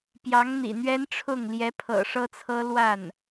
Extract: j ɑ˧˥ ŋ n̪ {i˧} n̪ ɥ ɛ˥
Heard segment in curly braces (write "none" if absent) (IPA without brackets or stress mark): ḭ˨˩